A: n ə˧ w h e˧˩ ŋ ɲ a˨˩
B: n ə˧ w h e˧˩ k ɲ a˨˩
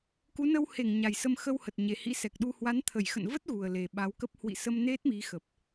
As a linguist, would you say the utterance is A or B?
A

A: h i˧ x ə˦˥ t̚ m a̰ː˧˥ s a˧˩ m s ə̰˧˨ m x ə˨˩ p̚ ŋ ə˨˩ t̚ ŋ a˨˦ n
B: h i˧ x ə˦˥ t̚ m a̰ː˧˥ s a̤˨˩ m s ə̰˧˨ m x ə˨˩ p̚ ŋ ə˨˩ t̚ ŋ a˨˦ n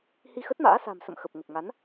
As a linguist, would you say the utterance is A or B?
B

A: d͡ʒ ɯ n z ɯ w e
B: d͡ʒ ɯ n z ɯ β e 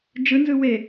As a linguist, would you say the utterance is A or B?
A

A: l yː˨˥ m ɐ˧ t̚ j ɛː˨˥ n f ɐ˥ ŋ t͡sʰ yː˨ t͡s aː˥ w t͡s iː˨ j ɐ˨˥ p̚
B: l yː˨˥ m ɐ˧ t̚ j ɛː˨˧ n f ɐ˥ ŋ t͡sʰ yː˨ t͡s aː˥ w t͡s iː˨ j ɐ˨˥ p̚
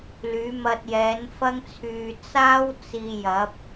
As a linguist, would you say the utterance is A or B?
A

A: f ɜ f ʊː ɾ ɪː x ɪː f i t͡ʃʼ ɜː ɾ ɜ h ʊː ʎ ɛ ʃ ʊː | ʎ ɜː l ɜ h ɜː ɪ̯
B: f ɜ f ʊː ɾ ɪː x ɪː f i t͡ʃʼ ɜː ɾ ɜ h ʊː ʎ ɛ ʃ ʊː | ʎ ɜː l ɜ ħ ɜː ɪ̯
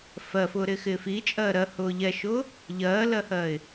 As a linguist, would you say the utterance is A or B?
A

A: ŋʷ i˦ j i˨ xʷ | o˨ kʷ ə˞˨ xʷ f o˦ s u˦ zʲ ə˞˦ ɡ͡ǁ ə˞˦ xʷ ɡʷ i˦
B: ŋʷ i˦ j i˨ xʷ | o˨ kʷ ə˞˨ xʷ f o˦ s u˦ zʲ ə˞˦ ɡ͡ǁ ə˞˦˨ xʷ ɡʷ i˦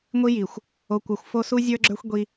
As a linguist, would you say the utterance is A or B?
A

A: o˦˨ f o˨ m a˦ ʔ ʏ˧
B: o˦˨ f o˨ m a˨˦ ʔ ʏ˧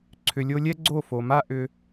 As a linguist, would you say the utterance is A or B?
A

